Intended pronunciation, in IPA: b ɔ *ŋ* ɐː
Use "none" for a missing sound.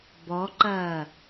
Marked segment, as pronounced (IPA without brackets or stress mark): ǃ